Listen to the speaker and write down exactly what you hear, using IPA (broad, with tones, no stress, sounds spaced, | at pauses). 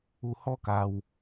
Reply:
u˧ h ɔ˦ k a˧ w